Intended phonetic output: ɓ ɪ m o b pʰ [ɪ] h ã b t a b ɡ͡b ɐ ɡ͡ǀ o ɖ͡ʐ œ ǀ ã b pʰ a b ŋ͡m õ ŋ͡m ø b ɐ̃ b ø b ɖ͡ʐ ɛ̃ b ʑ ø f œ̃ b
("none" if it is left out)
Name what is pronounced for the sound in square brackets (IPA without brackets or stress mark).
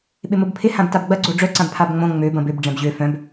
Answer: ɪ